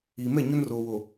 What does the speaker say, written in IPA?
iː˨ m ɛ˦˨ ɲ ʊ˦ n r oː˨ w o˨

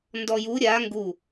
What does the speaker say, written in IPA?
n d ɔ j u ɾʲ a ŋ ɡ u

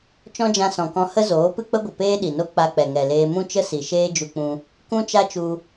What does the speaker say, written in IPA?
t͡ʃ ɔ̃˦ d͡ʒ ã˧ s ɔ̃˨ k ɔ̃˧ h ə˦ z oː˨˦ p ɨ˦ k͡p ə˦ ɡʷ ə˨ p eː˦ ɗ i˨ n o˦ k͡p a˧ k͡p ɛ˨ ŋ ɛ˨ l eː˧ m ũ˦ t͡ʃ ə˦ s i˨ ʃ eː˦ d͡ʒ u˧ k͡p ũ˧ | k ũ˦ t͡ʃ a˦ t͡ʃ u˧

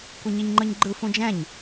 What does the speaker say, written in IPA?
kʷ i ɲ i ɲ ŋ͡ǃ ɯ ɲ ɡ͡ǃ ɯ f ũ d͡ʒ ɛ̃ ɲ

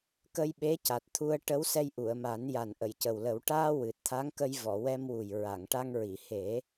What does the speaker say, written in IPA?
k ə˧ j ɓ e˧˥ c a˨˩ t̚ t̪ʰ u˧ ə̯ ʈ ə˧˥ w s ɛ˧ j ʔ u˨˩˨ ə̯ m a˨˩˦ n j a˨˩ n ʔ ə˨˩˨ j c ə˨˩ w l ə˨˩˦ w ʈ aː˧ w ɨ˨˩ t̚ t̪ʰ a˧˥ ŋ k ə˧ j v ɔ˨˩˨ w ɛ˧ m w u˨˩ j ɹ a˨˩˨ ŋ ʈ a˧ ŋ ɹ i˨˩˨ h e˨˩˦

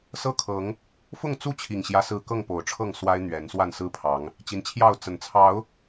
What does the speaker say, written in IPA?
s ɤ˦ kʰ ɤ˨˦ ŋ | f ʊ˥˨ ŋ t͡s u˥˨ t͡ɕʰ i˨˩ ŋ ɕ j ä˦ s ɹ̩˥˨ k ɤ˥˨ ŋ p o˨˩ ʊ̯ ʈ͡ʂʰ ɤ˥˨ ŋ s w a˦ ɪ̯ n̪ ɥ ɛ˨˦ n s w a˥˨ n s ɹ̩˦ pʰ ɑ˨˦ ŋ | t͡ɕ i˨˦ n t͡ɕʰ j ɑ˥˨ ʊ̯ t͡s ə˨˩ n t͡sʰ ɑ˨˦ ʊ̯

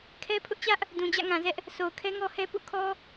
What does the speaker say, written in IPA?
kʰ ɛ˦ pʰ ʊ˦ ʔ t͡ɕ ä˦ ʔ | d ũ˨ d͡ʑ ä̰˦˨ ŋ ã˨ z ɛ˦ ʔ | s o˨ ʊ̯ kʰ ɛ˦ ŋ ɔ˦ h ɛ˦ p ṵ˦˨ kʰ ɔ˦

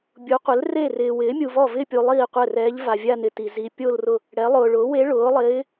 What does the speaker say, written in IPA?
bʲ u˩˥ qʷ ɪ˩˥ l r e˥˩ r ɪː˨ w ɪː˩˥ mʲ u˨ v ɔ˥˩ v ɪː˥˧ pʲ u˨ lˠ iː˥˩ qʷ ɛ˥˩ r ɛː˧˥ ʎ v a˨ vʲ a˥˧ n ɪ˨ t i˨ z i˧˥ pʲ o˥˧ l r ʊ˥˩ | ɽ ɛ˩˥ lˠ ʊː˨ ɭ ʊː˩˥ w e˧˥ ɭ ʊː˩˥ lˠ ɪː˧˥

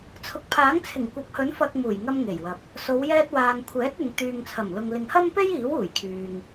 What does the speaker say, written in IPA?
t͡sʰ ʊ˨ k̚ pʰ aː˨˥ ŋ t͡sʰ ɪ˨˩ ŋ kʷ ɐ˨˥ p̚ h ɵ˨˥ n f ɐ˧ k̚ m uː˨˩ j ŋ ɐ˧ m ŋ e˨˩ j w ɐ˨ p̚ | s o˨˧ w j ɛː˧ t̚ w aː˨ ŋ kʷʰ ɛː˨˥ t̚ ɪ˨ ŋ t̪ yː˨ ŋ t͡sʰ ɐ˨˩ m l ʊ˨ ŋ l ɪ˨ ŋ h ɐ˥ m p e˥ j iː˨˥ w uː˨˩ j kʰ yː˨ ŋ

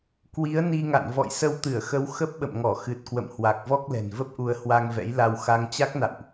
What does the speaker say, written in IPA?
k w i˨˦ ə̯ n i˧ ŋ a̰˧˨ n v ɔ̰˧˨ j s ə˧ w t̪ ɨ˧˩ ə̯ x ə˨˦ w x ə˦˥ p̚ ɓ ə̰˧˨ m ŋ ɔ˧˩ x ɨ˨˩ t̚ k w ə̰˧˨ m h w a˨˩ k̚ v ɔ˦˥ k̚ l ɛ̤˨˩ n v ə˦˥ p̚ ʔ u˧ ə̯ h w a˧ ŋ v ɛ̰˧˥ j l a˧ w x a˧ ŋ t͡ɕ a˦˥ k̚ n a̰˧˨ w ʔ

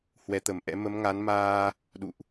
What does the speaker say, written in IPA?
h w ɛ˨˦ t̪ ə˨˩ m ʔ ɛ̰˧˥ m ə˨˦ m ŋ a˨˦ n m aː˧ | ɗ ṵ˧˨ ʔ

